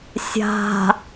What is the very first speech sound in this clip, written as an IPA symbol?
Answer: sʲ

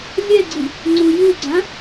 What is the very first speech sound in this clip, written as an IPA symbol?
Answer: lʲ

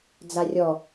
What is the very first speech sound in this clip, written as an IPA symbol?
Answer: d͡z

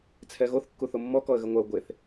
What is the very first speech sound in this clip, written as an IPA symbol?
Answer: t͡sʰ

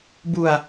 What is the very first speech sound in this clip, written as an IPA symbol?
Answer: b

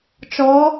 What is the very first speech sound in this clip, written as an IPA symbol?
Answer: t͡ʃ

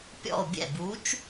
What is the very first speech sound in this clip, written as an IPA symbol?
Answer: pʲ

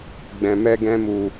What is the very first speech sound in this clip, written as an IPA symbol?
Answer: ɡ͡b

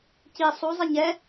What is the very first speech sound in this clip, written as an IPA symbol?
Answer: c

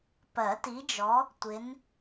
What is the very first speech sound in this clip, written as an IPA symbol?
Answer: p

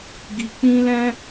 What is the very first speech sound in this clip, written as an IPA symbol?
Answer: ɡ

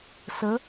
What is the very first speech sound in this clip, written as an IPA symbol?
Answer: s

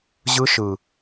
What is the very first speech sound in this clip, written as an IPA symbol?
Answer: ʑ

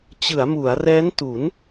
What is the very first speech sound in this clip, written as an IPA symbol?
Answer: t͡ɕ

